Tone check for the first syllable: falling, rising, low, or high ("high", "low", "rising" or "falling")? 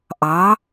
rising